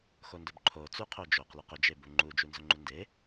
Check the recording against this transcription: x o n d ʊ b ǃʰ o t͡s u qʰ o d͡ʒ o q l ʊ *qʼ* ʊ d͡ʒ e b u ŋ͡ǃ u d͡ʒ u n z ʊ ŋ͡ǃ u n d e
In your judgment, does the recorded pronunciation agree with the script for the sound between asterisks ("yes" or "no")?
no